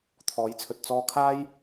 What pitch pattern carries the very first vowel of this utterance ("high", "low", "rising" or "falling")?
rising